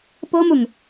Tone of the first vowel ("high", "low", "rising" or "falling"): high